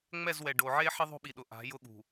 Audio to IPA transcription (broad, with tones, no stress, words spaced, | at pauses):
ŋ͡mɛ˦˨zwɛ˨ɖo˨ʕe˦ ħɪ˦ðˤo̤˦ɓi˨ɗʊ˨ ʔa̤˨˦jʊ˦ɠṳ˨